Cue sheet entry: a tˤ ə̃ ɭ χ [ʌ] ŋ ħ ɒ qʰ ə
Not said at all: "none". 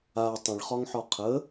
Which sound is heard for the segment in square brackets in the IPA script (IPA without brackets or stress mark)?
ɒ